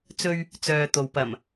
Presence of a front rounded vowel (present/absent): present